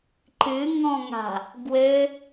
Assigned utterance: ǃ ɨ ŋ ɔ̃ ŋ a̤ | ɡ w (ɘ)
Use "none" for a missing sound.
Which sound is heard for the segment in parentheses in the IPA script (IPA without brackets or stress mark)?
ɘ